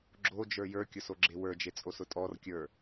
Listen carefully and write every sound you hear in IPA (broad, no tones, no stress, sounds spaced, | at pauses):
ɡ͡ǁ o d͡ʒ ə˞ j ə˞ kʲ ʊ s o ɡ͡ǁ e w ə˞ d͡ʒ e t͡sʼ o s ʊ tʼ ɔ r kʲ ə˞